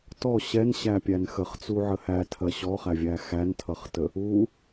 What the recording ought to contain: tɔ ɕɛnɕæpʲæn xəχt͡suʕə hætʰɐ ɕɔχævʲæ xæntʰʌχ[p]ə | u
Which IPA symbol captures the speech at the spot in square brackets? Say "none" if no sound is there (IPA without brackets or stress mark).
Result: t